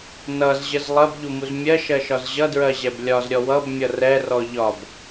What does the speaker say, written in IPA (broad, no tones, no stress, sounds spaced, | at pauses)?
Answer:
n ʌ z ʑ ə z lˠ ɜ b ʎ u m u z mʲ ɜ ʃ ɜ ʃ ɒ z ʑ ʌ d ɹ ɜ ʑ ɛ b lʲ ɒ z ɾʲ ɔ w ʌ b mʲ ʌ r ɛ r ɔ ʎ ɒ b